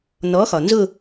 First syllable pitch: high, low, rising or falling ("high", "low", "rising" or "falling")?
rising